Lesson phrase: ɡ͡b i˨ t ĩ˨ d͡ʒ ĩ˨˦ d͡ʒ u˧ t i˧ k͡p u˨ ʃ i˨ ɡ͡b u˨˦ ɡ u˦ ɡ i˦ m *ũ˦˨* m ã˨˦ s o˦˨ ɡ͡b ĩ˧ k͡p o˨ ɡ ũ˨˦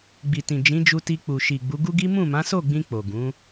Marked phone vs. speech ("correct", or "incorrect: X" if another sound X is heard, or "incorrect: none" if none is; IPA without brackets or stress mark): correct